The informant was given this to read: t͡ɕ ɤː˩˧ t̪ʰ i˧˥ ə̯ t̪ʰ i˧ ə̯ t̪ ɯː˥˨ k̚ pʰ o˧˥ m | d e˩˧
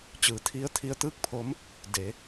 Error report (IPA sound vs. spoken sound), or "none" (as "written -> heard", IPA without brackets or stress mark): ɤː˩˧ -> ɯː˩˧